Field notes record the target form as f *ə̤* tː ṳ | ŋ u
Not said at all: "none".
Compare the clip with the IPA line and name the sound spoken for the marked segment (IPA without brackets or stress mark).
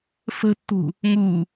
ə̤